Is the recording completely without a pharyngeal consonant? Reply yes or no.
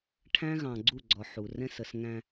no